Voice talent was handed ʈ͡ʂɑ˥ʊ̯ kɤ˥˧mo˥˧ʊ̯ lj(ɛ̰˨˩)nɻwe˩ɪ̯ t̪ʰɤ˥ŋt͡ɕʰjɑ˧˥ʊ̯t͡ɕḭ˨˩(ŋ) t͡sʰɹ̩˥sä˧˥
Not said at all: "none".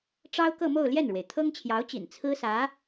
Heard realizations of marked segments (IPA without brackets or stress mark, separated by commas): ɛ˥˩, n